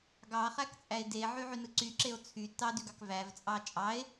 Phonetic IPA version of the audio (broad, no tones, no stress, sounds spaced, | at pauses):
ɡ ɑ χ æ k t͡sʼ æ e̯ d e ʕ y ʕ y n ɯ ǀ y ǁ e o̯ t͡sʰ y t ɑ d y ɡ ɑ k v æ v t͡sʼ ɑ t͡ʃʼ ɑ e̯